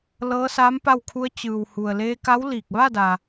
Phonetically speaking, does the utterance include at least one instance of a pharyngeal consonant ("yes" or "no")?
no